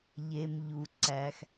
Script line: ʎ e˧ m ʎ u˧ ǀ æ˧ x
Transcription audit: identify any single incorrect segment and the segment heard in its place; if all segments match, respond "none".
none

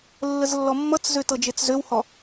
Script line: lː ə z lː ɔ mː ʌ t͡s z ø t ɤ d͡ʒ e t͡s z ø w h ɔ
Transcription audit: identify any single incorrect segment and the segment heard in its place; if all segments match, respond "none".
none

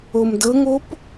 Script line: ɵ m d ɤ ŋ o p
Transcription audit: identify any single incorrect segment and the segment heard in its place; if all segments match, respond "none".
ɵ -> o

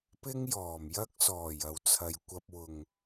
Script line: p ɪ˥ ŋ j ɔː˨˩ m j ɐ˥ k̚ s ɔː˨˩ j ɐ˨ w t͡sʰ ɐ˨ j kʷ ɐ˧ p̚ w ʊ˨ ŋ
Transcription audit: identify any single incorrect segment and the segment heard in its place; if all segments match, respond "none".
none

